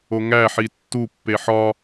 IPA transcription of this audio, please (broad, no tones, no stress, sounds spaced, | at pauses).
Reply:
o ŋ æ ħ i tː u pː e ħ ɒ